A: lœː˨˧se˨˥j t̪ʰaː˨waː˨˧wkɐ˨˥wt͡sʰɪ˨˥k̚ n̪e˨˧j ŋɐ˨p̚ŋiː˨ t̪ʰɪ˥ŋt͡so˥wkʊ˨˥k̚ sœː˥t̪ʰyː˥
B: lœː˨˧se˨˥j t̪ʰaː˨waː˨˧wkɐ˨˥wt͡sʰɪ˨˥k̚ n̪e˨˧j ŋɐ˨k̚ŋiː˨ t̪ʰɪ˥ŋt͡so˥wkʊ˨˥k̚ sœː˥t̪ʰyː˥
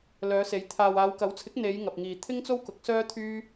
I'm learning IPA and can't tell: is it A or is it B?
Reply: A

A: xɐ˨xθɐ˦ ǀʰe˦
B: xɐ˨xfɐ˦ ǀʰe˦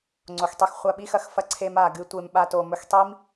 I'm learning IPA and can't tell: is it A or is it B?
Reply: B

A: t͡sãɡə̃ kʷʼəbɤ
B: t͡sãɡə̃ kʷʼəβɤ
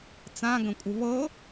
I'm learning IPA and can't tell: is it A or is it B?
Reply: B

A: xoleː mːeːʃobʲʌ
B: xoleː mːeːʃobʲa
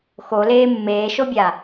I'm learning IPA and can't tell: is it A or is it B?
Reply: B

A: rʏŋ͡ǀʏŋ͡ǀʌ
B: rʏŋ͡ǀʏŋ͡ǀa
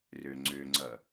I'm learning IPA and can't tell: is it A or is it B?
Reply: A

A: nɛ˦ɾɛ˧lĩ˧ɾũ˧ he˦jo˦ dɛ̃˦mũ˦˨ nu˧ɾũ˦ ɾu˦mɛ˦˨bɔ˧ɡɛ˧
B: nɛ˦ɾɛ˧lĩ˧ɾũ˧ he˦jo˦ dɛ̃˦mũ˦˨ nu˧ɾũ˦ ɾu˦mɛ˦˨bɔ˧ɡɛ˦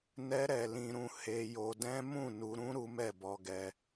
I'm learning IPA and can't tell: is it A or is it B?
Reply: A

